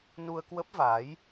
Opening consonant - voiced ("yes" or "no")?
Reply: yes